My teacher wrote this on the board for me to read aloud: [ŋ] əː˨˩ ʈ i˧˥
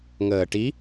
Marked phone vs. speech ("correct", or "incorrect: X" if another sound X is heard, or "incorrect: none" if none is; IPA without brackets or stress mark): correct